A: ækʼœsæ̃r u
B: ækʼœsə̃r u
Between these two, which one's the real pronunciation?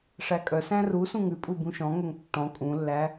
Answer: A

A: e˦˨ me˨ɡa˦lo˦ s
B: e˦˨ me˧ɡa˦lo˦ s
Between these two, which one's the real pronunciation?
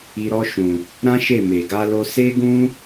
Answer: B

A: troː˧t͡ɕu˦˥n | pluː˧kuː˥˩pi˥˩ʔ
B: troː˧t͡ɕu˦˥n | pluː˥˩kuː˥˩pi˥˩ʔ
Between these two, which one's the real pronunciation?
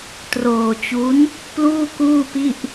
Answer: B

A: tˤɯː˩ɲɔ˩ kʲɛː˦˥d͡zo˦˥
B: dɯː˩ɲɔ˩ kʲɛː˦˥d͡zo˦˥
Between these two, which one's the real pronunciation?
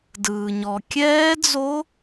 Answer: B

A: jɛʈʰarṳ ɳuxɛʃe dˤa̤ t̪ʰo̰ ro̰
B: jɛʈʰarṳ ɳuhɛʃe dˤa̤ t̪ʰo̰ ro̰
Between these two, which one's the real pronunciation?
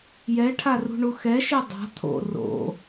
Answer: A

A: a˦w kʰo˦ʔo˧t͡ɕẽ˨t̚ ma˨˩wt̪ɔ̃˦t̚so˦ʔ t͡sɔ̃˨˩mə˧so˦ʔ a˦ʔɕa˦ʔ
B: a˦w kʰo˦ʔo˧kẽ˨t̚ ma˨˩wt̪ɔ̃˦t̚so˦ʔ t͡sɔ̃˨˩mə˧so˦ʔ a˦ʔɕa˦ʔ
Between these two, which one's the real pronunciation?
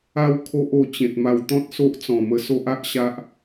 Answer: A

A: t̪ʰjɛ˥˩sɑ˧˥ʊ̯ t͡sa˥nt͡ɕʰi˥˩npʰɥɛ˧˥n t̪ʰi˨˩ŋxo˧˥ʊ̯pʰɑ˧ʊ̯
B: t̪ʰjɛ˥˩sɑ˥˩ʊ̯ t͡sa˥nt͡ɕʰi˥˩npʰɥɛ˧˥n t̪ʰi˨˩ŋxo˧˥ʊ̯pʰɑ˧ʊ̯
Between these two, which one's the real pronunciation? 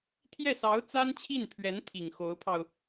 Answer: A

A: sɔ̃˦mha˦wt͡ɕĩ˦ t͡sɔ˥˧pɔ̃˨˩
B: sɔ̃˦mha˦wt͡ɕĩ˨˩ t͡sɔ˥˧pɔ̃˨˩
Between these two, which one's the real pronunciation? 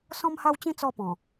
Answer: A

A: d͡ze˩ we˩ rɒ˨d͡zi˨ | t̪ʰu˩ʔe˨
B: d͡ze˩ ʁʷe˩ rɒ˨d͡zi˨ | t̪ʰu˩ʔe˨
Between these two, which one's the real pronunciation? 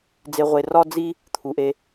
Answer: B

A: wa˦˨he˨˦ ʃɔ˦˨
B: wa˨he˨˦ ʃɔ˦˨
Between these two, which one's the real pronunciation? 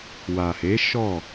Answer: B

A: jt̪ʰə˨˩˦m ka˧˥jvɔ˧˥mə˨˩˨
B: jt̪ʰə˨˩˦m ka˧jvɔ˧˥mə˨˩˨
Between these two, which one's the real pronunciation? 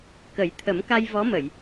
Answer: B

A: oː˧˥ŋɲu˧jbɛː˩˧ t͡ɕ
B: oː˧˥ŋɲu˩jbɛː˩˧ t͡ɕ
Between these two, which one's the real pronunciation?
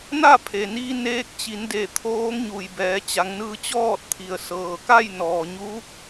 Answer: B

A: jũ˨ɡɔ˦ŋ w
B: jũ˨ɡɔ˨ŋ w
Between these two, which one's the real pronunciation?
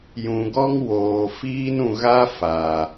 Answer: A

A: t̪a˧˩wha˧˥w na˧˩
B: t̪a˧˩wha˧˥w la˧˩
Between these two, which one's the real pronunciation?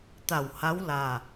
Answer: B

